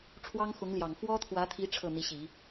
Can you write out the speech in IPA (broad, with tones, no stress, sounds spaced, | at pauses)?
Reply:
ʈ͡ʂʰ w ɑ˥ ŋ x ʊ˧˥ ŋ l j ɑ˨˩ ŋ f w ɔ˥ t̪ʰ w ä˧˥ t̪ʰ i˧˥ ʈ͡ʂʰ ɤ˥˩ n̪ i˧˥ ɕ i˨˩˦